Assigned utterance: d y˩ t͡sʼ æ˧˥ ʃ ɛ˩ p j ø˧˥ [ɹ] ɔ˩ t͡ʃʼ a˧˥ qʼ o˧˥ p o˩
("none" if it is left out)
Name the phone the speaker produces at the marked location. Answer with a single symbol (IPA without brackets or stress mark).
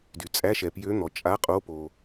n̪